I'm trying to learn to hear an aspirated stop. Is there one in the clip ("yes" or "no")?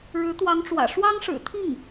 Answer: yes